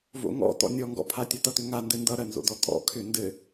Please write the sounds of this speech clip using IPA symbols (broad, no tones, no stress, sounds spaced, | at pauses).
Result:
v o̰ ŋ ɔ̰ t ɔ̰ nʲ ɔ ŋ ɡ ɔ̰ pʰ a tʲ ʌ t ʌ t ʏ ŋ a n d ɘ n d ʌ ɾ ɜ n z o̰ d ɔ tʼ ɔ̰ kʰ ʏ n d ɘ